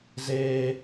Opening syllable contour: high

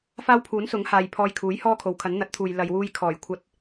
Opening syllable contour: high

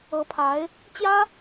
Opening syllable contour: rising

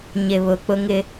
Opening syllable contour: low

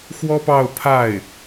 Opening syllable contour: high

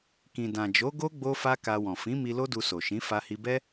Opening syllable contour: low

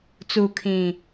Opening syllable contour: low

